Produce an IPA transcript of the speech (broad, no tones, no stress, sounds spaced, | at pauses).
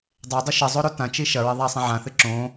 dˤ ɛ dˤ ɨ ʃ ɘ zˤ o ɾ o t ã t͡ʃ i ʃ ɐ ɹ ɛ ðˤ a sˤ ĩ ʕ ã θ ɨ ǁ õ